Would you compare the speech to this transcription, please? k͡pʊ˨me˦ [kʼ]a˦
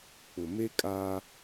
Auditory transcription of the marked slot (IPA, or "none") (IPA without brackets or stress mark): kʼ